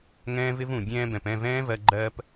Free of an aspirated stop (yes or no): yes